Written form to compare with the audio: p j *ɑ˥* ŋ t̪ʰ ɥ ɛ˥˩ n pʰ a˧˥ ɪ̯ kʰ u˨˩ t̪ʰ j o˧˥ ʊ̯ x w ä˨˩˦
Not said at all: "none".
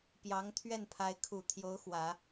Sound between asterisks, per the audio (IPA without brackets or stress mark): ɑ˧˥